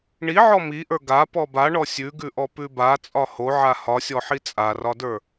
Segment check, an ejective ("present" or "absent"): present